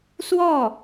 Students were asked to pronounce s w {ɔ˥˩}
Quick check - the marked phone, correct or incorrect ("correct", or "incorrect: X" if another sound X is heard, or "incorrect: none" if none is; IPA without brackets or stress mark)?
correct